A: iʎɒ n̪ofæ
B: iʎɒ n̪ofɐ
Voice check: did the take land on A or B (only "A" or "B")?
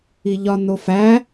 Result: A